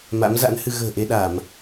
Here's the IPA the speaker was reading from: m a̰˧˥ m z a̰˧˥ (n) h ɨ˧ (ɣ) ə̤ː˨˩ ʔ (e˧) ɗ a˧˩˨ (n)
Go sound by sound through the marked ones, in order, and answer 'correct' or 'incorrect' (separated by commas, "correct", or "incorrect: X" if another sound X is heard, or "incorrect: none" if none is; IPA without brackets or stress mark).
correct, correct, correct, incorrect: m